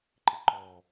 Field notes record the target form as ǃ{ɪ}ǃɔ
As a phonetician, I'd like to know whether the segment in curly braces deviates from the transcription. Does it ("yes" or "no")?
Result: no